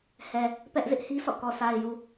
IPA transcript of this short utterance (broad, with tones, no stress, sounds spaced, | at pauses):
h ɛ˨ | p ɛ˦ ʔ z ɪ˦ ʔ h i˦ sʰ ɔ̰˦˨ k ɔ˨ s a˨ ɪ̯ j u˨